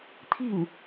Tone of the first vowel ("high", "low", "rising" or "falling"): falling